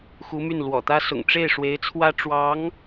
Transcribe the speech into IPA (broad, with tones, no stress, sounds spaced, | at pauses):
x u˧˥ m y˥˩ n l w ɔ̰˨˩ t̪ ä˥ s ʊ̰˨˩ ŋ ʈ͡ʂ e˥˩ ɪ̯ ʂ w e˧˥ ɪ̯ t͡sʰ w ä˥ ʈ͡ʂ w ɑ˧˥ ŋ